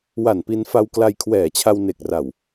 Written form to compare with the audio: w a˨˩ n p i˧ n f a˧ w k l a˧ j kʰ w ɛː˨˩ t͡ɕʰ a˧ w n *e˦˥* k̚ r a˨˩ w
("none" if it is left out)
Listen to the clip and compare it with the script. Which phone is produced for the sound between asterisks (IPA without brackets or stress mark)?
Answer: e˨˩